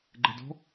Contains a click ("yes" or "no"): yes